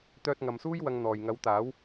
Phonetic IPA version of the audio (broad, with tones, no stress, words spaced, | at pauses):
t̪œː˧t̚ŋɐ˨msuː˥j wɐ˧ŋ n̪ɔː˨˩jŋɐ˨˥wt̪aː˨˥w